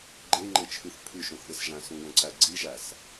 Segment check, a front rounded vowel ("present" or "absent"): absent